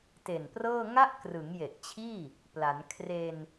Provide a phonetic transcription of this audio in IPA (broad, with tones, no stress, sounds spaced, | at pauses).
t e˨˩ n p r ɤː˥˩ ŋ a˦˥ ʔ k r ɯ˩˦ ŋ j e˨˩ ʔ t͡ɕʰ iː˥˩ | p l a˩˦ n kʰ r e˧ n